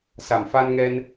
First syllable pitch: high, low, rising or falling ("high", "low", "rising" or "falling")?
low